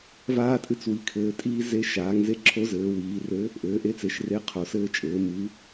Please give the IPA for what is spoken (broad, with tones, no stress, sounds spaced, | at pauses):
v aː˧ tʼ ɨ˨˥ t͡s w i˩˧ kʰ ɘː˩˧ tʼ iː˧ z e˨˥ ʃ aː˩˧ ŋ z e˧ ǁʰ o˨˥ z ɘː˩˧ w iː˩˧ r ɘ˨˥ | ʔ ɘː˩˧ ʔ e˨˥ t͡s e˩˧ ʃ r e˨˥ qʰ o˩˧ s ɘː˧ t͡ʃʼ ɘː˩˧ m ɨ˩˧